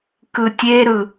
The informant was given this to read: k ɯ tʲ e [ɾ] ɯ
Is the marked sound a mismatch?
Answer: no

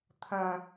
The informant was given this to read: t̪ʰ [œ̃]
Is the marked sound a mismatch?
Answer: yes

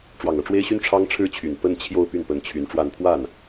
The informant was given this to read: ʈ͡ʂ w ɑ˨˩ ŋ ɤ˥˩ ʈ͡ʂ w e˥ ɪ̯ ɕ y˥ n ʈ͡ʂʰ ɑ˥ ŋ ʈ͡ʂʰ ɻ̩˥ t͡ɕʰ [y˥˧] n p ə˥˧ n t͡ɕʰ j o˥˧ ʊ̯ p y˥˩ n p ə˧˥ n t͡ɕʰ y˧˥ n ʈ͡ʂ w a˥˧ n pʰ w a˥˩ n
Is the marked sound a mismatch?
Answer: yes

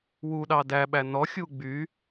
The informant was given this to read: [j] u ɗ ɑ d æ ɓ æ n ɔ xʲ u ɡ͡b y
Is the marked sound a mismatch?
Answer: yes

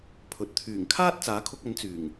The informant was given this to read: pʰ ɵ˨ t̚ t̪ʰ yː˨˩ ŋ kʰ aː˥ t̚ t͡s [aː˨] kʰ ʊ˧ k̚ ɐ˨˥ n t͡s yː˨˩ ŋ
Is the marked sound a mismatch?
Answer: yes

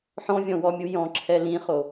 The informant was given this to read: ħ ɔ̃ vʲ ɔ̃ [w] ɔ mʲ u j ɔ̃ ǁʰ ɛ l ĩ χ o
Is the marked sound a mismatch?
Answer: no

